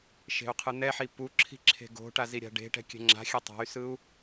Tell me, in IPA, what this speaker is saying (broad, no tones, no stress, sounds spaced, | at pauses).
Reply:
ʃ e̤ u̯ qʰ ɯ n̪ ɛ ħ i p u ǁʰ i̤ ǁʰ e̤ ɡ o̤ ʈ a z i ɾʲ a̤ ɖ e̤ ʈ ɛ̤ kʲ ɛ̤ ŋ͡ǁ a̤ xʲ ɛ tˤ a̤ y̯ s ɯ u̯